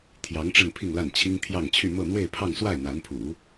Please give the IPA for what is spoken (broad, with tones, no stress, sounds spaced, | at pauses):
t̪ʰ j ɑ˧˥ ŋ ʈ͡ʂ ə˥˧ n pʰ i˥˧ ŋ l a˥˩ n t͡ɕʰ i˥ ŋ t̪ʰ j ɑ˥˧ ŋ t͡ɕʰ y˥˧ m ɤ˥˧ n̪ w e˥˧ ɪ̯ pʰ ɑ˥˧ ŋ s w a˥˩ ɪ̯ n̪ a˧˥ n pʰ ṵ˨˩˦